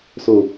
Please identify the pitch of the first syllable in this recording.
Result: low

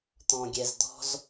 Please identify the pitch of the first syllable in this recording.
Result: low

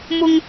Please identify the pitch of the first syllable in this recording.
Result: high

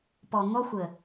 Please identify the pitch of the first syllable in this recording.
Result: low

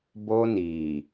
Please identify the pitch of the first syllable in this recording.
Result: high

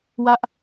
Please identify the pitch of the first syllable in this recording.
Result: high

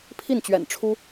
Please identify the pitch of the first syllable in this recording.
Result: falling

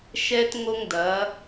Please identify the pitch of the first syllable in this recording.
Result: high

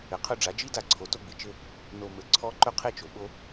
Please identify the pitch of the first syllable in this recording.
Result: low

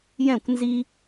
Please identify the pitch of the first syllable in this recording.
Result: falling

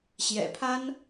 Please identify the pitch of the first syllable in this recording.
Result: low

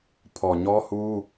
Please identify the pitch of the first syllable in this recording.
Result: low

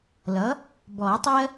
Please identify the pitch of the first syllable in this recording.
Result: rising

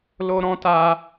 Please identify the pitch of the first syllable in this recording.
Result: high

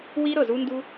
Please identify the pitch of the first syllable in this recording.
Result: high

